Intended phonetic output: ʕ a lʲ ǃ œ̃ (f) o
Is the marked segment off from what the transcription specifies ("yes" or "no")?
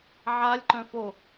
no